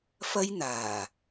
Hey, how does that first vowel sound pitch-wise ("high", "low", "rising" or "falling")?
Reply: high